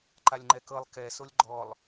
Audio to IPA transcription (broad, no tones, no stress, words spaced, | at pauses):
ǃalʲŋ͡ǃɛkɤlˠ kɛsolʲ ɡ͡ǃɔlˠ